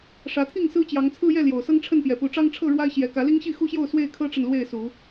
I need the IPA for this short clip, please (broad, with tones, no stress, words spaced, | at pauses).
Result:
ʂä˨˦t̪ʰi˥˨ŋ sɹ̩˦t͡ɕjɑ˨˦ŋt͡sʰɹ̩˦jɛ˥˨ ljo˨˩ʊ̯sɤ˦ŋʈ͡ʂʰə˥˨npjɛ˨˩ pu˨˦ʈ͡ʂɑ˦ŋʈ͡ʂʰɤ˥˨ ɻwa˦ɪ̯ɕjɛ˨˦ kä˨˦li˦ŋɕi˥˨ xu˦ɕjo˥˨ʊ̯ swe˥˨ɪ̯kʰɤ˦ʈ͡ʂə˨n lwe˥˨ɪ̯su˨˦